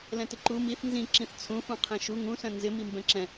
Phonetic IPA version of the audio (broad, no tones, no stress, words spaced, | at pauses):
lɛ̃tɪǃu miθ nzĩ ǁĩθt͡sʰũ fũqʰɛ̃ʃu ŋũ sœ̃nzɪ mimbɛ̃ǁɛ̃